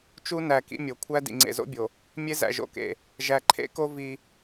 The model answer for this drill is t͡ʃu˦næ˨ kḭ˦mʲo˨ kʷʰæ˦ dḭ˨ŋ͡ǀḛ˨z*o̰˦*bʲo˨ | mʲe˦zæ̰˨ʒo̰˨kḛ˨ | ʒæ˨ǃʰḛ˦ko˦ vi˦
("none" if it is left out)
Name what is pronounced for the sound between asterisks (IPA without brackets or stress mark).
o̰˦